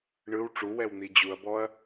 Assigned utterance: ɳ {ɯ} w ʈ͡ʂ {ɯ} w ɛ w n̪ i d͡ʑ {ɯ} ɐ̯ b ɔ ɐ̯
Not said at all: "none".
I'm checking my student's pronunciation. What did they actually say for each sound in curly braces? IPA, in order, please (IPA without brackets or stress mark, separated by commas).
ɯ, u, u